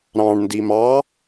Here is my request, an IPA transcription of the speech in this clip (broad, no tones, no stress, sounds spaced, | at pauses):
ɾ ɑ̃ ɳ n d i m ɑ